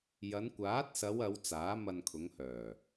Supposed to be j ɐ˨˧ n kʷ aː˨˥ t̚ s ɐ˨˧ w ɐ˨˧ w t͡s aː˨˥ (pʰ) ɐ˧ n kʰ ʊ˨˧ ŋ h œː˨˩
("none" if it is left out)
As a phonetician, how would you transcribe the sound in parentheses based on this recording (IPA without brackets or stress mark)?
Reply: m